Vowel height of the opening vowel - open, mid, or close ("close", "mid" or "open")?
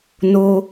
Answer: mid